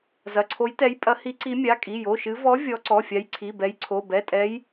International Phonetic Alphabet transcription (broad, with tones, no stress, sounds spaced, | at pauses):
z ɐ˩˧˩ ǀʰ o˨˦ j t ɛ˨˦ j pʼ ɐ˨˦ h i˨˦ ǀ i˨˦ mʲ a˩˧˩ kʼ i˩˧˩ j o˩˧˩ ʃ ɨ˨˦ v ɔ˨˦ vʲ ɔ˨˦ ǀ ɔ˩˧˩ fʲ a˨˦ j ǀʰ i˩˧˩ b ɛ˨˦ j ǀʰ o˩˧˩ b ɛ˩˧˩ tʼ ɛ˨˦ j